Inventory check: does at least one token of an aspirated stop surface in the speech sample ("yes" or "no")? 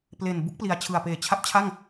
yes